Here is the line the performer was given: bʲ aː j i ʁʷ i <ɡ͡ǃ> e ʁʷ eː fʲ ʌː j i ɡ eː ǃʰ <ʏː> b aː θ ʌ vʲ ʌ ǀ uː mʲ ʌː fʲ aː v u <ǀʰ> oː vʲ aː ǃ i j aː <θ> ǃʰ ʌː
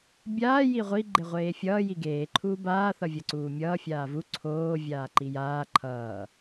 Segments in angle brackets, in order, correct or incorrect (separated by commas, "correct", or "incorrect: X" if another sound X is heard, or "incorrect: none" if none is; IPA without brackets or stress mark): correct, incorrect: uː, correct, incorrect: none